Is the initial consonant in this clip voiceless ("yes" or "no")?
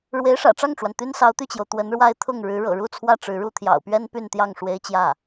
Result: no